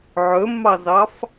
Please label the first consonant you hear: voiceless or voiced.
voiced